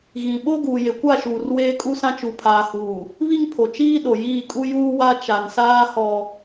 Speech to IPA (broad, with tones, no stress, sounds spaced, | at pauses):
ɣ ĩ˨ ɓ o˦ ɡ uː˨ j e˨ kʷ a˦˨ ʃ uː˨ r w eː˦ kʼ u˦ s ã˦ t͡ʃ u˨ pʰ aː˨ h uː˨ | β i˦ ŋ pʰ o˨ t͡ʃ iː˦ ɗ o˨ j iː˦˨ kʼ u˦ j uː˦ w a˦ t͡ʃ a˨ n s aː˦ h ɔ˦